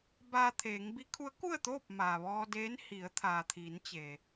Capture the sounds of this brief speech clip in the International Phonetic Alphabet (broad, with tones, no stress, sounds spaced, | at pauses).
b aː˧ t̪ʰ eː˩˧ ŋ b i˧˥ kʰ u˧˥ ə̯ k u˥˨ ə̯ t̪ oː˥˨ p̚ m aː˩ ʋ ɔː˧ d eː˧˥ n h i˩˧ ə̯ t̪ʰ aː˩ t̪ʰ iː˩˧ n t͡ɕ e˩